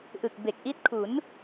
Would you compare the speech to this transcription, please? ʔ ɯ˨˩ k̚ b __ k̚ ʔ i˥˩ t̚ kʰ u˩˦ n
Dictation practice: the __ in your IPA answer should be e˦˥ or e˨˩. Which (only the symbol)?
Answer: e˨˩